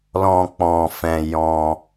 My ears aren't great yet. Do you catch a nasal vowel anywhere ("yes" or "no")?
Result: yes